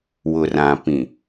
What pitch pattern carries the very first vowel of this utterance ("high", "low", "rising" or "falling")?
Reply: low